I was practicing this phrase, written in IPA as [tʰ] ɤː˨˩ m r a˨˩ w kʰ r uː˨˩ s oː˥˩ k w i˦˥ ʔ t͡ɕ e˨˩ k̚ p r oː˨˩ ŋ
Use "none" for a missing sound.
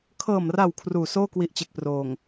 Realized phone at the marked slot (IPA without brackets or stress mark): kʰ